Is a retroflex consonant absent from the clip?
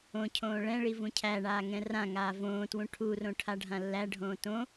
no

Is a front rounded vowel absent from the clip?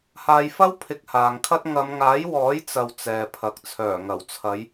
no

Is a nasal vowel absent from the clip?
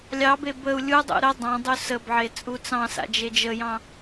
no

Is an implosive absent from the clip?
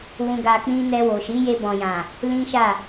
yes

